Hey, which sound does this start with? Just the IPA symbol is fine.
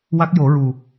w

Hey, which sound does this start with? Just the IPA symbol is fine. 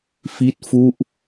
f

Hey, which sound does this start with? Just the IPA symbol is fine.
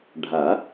ɖʱ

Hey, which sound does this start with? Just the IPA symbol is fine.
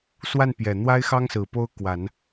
s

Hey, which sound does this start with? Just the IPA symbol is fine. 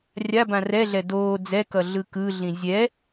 rʲ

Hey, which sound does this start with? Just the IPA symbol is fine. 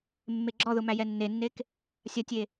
mː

